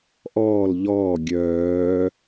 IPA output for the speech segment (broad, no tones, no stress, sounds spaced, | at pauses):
ʔ ɔː l ʎ ɔː ɡʲ œː